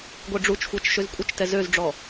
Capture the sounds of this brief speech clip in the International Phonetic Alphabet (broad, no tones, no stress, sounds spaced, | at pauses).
ɡʷ ɛ ɖ͡ʐ u t͡ʃ xʷ a t͡ʃ ʃ ø z kʷʼ ə t͡ʃ t ɛ z ø z ɖ͡ʐ ɔ